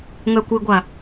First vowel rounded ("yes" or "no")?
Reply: yes